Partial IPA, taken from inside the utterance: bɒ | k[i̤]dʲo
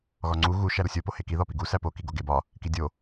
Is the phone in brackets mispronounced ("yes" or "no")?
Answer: yes